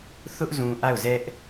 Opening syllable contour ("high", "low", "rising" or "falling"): high